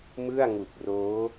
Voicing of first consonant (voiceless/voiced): voiced